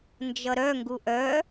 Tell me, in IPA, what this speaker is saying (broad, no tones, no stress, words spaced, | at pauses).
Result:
nd͡ʒʌɾœ ŋɡuʔœ